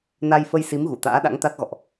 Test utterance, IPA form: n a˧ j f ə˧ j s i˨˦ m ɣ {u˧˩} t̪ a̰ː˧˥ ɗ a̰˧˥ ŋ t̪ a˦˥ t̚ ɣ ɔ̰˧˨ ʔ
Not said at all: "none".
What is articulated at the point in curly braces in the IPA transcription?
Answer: u˧˩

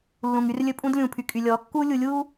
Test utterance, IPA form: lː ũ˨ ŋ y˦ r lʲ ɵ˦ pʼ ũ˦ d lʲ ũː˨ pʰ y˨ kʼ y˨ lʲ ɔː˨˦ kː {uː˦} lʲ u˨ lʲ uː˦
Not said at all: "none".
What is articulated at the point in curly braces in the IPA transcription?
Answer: uː˦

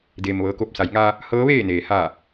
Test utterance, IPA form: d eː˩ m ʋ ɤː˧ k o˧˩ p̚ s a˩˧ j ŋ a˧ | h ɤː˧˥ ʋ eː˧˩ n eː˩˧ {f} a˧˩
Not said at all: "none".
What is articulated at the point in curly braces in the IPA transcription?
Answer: h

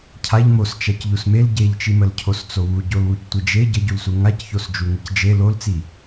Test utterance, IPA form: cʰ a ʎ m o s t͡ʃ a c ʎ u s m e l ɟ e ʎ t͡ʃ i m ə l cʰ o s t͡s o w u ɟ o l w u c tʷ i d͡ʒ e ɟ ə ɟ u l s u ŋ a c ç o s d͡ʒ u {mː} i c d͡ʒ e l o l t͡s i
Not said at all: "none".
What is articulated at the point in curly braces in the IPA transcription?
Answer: ŋ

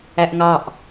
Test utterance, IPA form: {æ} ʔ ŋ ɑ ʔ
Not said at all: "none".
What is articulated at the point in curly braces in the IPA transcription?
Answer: æ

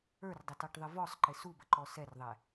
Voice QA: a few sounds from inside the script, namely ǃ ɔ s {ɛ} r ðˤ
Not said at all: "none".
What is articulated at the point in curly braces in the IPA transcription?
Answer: ɛ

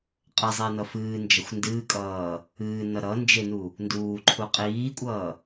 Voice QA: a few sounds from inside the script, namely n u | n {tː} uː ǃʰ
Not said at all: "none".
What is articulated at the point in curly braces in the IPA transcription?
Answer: d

